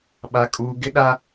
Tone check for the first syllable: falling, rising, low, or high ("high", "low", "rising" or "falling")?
high